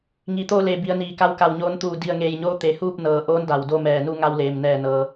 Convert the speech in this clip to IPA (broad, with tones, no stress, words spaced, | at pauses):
ŋi˩t̪o˧le˩ bi˩˧ə̯niː˩ka˧˥w ka˧˩wɲoː˧˥nt̪uː˧˩ di˧˩ə̯ŋeː˧˩jɲoː˧˥ t̪e˩huː˥˨p̚nɤː˩ʔoː˧˥n da˩wdo˥˨mɛː˧˩ nu˥˨ŋa˧wleː˩mnɛː˧˩ nɤː˩